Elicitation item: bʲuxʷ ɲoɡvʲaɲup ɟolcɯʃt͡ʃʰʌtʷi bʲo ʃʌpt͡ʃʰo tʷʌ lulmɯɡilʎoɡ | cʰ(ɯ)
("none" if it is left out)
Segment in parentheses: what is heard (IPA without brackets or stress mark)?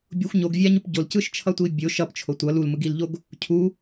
u